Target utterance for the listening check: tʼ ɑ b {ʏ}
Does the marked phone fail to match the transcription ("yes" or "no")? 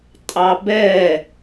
yes